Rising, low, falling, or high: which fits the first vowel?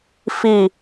falling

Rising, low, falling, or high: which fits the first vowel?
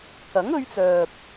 rising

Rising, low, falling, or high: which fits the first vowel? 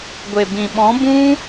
low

